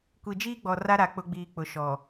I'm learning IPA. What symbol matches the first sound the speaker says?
kʷ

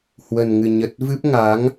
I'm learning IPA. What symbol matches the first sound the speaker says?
h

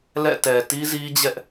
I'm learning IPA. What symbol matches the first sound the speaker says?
l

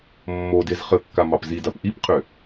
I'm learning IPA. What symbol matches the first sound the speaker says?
mː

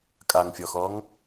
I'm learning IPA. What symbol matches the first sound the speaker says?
kʼ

